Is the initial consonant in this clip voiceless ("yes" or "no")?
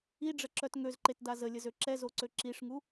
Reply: no